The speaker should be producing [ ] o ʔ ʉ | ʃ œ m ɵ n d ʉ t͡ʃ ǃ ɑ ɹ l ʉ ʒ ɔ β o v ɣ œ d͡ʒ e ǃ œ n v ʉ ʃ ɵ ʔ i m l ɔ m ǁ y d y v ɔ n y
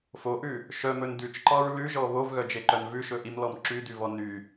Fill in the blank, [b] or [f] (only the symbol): f